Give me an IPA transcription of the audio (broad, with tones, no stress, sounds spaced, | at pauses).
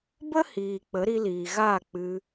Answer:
b ə˦ h iː˨ k͡p ə˨˦ ɾ i˧ l iː˨ ɣ aː˦˨ k͡p ɨ˧